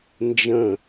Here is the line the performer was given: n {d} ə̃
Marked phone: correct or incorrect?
incorrect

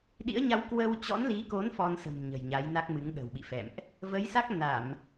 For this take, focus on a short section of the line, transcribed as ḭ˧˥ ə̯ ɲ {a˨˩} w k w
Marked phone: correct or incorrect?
incorrect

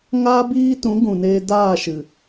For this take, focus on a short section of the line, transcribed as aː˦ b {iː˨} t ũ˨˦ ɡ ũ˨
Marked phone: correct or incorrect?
incorrect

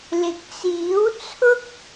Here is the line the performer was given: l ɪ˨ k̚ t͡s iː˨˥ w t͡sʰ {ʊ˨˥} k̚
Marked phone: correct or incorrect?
incorrect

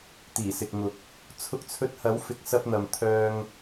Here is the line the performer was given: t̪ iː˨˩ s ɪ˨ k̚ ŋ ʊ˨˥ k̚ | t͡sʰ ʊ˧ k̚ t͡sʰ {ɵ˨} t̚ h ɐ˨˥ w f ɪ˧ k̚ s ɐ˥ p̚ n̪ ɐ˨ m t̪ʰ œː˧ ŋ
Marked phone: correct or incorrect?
incorrect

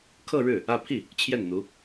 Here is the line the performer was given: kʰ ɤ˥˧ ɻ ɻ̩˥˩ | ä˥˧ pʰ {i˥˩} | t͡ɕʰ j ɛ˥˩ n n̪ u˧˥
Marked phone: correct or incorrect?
correct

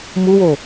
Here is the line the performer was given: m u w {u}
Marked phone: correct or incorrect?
incorrect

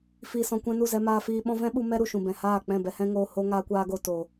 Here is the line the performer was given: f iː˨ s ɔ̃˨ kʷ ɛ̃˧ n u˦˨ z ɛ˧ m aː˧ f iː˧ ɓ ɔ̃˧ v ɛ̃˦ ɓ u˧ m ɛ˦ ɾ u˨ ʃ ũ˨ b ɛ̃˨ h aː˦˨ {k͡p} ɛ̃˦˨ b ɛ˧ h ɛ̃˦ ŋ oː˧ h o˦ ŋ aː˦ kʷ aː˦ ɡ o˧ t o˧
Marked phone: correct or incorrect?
correct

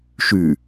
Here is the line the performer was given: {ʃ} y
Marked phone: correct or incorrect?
correct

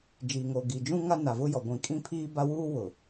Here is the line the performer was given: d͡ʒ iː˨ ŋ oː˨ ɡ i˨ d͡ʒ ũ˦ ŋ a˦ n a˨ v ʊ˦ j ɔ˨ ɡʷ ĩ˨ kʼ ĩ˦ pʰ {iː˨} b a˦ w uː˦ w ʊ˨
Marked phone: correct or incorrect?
incorrect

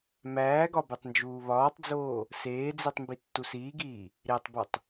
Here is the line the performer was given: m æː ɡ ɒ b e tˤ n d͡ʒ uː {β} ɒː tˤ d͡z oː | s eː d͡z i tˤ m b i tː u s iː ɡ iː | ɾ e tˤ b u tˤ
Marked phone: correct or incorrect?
correct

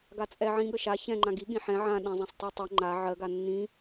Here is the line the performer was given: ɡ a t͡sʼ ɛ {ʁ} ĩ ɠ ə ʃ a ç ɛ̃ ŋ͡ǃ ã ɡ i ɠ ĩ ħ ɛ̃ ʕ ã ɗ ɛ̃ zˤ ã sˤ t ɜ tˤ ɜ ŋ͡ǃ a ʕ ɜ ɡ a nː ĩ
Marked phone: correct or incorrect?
incorrect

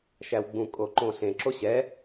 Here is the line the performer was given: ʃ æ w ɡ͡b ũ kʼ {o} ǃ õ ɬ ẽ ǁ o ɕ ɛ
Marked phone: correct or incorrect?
correct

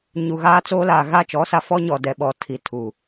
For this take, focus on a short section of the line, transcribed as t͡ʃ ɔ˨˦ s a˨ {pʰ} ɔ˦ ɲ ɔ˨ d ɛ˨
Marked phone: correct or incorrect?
incorrect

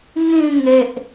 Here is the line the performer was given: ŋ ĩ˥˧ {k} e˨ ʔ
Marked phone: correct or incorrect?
incorrect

